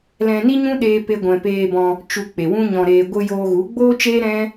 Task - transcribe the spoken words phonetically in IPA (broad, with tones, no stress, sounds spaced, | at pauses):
l ɛ̃˧ n i˦ ɲ ũ˦ ɗ eː˦ p e˦ ɡʷ ɛ̃˧ p eː˧ b ɔ̃˧ | t͡ʃ u˨ k͡p e˨ w ũ˦ ɲ ɔ̃˧ ɾ eː˧ ɡʷ ɨ˧ j oː˧ ɣ u˨˦ ɡ͡b oː˦ t͡ʃ eː˦ ɾ ɛ̃˦